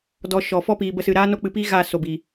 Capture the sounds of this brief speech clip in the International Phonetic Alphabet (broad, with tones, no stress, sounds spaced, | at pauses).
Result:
d ɔ˧ ʃ ɔ˨ f ɔ˦ p iː˧ b ə˦ s ɨ˧ ɾ aː˦ n o˦ k͡p ɨ˧ p i˦ ɣ a˦˨ s o˨ b iː˨